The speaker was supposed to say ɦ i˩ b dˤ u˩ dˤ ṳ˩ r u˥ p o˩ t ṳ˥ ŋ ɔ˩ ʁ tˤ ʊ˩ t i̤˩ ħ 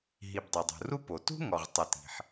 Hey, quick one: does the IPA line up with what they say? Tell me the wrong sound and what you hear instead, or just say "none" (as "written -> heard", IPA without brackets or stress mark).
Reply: none